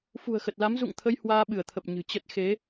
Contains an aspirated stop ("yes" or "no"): yes